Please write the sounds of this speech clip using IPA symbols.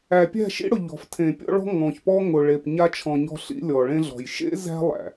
æ˨ pʲ æ̤˦˨ ʃ ḭ˦ ɽ ʊ˨ ʎ ɔ̤˨ f tʰ ẽ˨ pʲ ɔ̰˦ ɭ ɔ̤˦ ŋ ɔ̃˨ ç p ɔ˦ ŋ ʊ˨ ɭ e˨ p ɲ a˦ t͡ʃʰ ɔ̃˨ ɲ ɔ̤˦ ɬ ḭ˦ lʲ ɔ˨ ɭ ẽ˦ ɮ ɔ̤˨ j ʃ ḛ˦ z æ̤˦ lˠ æ̰˨

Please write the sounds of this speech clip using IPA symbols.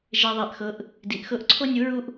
ʒ e˧ ðˤ a˧ ʔ x ɤ˧˥ ʔ | d i˩˧ ʔ x ɤ˧˥ ʔ ǀʰ o˥ nʲ u˧˥ ɹ u˥ ʔ

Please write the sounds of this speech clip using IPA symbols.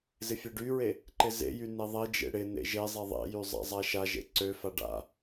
z ɪ fʲ ø ɖ y ɹ e | ǃ ɪ z ḛ j y n e ðˤ e d͡ʒ ḛ ɽ ɪ n ḛ ʒ e zˤ e ðˤ ḛ j y zˤ a̰ zˤ a ʃ a ʒ ḛ ǀ ø f a ɖ a̰

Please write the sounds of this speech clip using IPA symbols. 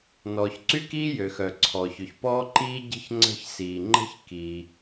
n ɔː˩ ç ǀ y˥ k iː˥ j ø˩ x œ˩ ǀʰ ɔː˩ ç ø˩ ç p ɔː˥ ǃ iː˥ ɟ ə̤˥ ç ŋ͡ǀ ə̤˥ ç s iː˩ ŋ͡ǃ ə̤˥ ç k iː˩

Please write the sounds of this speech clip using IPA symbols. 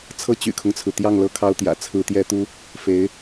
t͡sʰ ɤ˥ t͡ɕ y̰˨˩ kʰ ʊ˦ ŋ t͡sʰ ɹ̩˩ t̪ j ɑ˥˧ ŋ l ɤ˥˩ kʰ ɑ˥ ʊ̯ t̪ j ä̰˨˩ t͡sʰ ɹ̩˥ t̪ j ɛ˥ t̪ u˥ | f e˧˥ ɪ̯

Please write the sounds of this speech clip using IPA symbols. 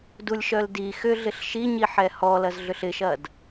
d u lʲ ʃ œ l d i x ʏ ɮ ɪ ɬ ʃ i ɲ i ħ ɛ h ɔ l ɐ z ɮ ʏ ɬ ɪ ʃ ɐ d

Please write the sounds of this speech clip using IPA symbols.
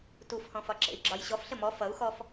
t u f h ɔ̃ f ɒ ǁ ḛ i̯ ɡ͡ǁ ɒ j ɕ ɔ f ɬ ə m ɔ f ʌ u̯ x ɔ f

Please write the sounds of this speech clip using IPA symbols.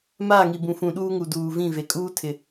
m aː˦˨ ŋ i˨ b ũ˨ f ũ˨ ɗ uː˦ ŋ u˨ d uː˨ v ĩ˦˨ v e˨ kʼ uː˦ tʰ ɪ˨

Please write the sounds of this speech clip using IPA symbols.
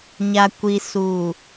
ɲ a˨ kʷ i˨ s u˨

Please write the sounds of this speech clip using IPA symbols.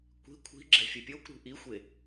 kʷ i̤ kʷʰ i̤ ɡ͡ǁ ɛ̤ fʲ u pʲ o kʷ ɾ ṳ ʔ i xʷ e

